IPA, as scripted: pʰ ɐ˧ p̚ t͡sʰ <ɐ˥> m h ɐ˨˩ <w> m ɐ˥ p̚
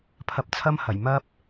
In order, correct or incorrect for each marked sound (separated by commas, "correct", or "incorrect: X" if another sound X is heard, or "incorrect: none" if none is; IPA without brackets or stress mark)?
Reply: correct, incorrect: j